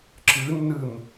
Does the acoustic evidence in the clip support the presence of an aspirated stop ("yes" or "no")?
no